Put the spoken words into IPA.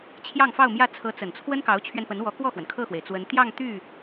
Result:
t͡ɕʰ j ɑ˥˧ ŋ f ɑ˥˧ ʊ̯ m j ä˥˩ t͡sʰ ɤ˧˥ t͡s ə˨˩ n t͡sʰ w ə˥ n k ɑ˧˥ ʊ̯ t͡ɕʰ ɥ ɛ˧ n p ə˧˥ n w ɔ˧˥ k w ɔ˥˩ x w ə˩ n kʰ ɤ˥˩ x w e˩ ɪ̯ t͡s w ə˧˥ n t̪ j ɑ˥˧ ŋ t̪ y˥˩

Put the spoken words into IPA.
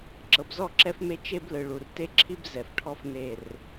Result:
ǁ ɤ˨ b z ɔ˦˨ ǁ ɛ˦ f m e˦ t͡ʃ e˦ b l ɯ˨ ɭ u˨ r t e˦ ǁʰ i˦ b z ɛ˨ f ʈʰ ɔ˦ f n e˦˨ r

